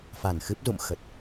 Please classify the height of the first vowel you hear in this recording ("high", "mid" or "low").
low